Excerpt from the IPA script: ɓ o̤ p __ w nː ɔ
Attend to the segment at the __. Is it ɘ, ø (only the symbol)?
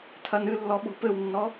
ɘ